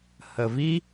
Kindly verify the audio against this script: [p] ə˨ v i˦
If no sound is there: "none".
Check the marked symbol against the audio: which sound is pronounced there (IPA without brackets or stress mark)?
h